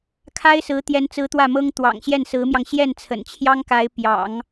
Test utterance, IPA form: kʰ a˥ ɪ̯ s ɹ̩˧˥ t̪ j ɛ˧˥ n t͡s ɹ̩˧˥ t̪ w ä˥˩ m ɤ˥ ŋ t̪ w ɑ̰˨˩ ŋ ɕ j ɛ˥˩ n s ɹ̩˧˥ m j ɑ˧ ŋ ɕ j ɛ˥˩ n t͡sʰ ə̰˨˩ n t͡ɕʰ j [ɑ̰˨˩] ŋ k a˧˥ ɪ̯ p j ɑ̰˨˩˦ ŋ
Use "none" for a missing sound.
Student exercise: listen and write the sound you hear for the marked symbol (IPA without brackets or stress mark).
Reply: ɑ˥